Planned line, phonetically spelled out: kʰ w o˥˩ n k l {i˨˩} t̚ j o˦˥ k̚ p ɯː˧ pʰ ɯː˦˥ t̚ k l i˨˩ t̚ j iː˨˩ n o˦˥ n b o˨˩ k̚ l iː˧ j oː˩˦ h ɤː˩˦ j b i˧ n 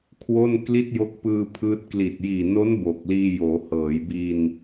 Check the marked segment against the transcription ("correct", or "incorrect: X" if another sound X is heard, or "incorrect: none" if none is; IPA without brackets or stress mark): incorrect: i˥˩